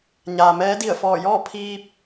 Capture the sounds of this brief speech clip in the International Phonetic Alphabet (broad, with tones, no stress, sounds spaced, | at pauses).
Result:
ɲ aː˩ m ɛː˧˥ d i˧˩ ə̯ f ɔː˧˩ j ɔː˥˨ pʰ iː˧ p̚